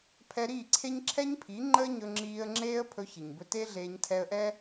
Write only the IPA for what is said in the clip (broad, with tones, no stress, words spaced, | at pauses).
pʰɛ˧ɾiː˦˨ǀʰe˦ɲ ǁʰɛ˦ɲpʰi˨˦ŋ͡ǃəː˦ ɲɵ˧ŋ͡ǁiː˧ə̯ŋ͡ǁeː˦ə̯ pʰɵ˦çi˨ɲbɵ˦ te˦ɮeː˧ɲ tʰɛ˧ə̯ʔɛ˦